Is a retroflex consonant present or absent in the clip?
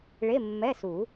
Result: present